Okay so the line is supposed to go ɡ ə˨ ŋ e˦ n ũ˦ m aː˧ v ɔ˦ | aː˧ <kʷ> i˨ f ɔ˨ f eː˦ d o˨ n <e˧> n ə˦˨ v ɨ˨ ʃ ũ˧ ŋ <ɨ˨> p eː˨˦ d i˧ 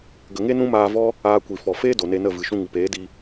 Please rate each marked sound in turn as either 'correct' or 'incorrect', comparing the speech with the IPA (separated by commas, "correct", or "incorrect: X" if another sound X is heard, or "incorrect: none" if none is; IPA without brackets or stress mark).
correct, correct, correct